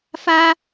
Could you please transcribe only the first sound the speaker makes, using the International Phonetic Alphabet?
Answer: f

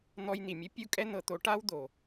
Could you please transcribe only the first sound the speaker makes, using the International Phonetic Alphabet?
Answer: n̪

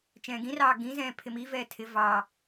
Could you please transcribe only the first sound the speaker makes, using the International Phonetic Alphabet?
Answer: t͡ʃ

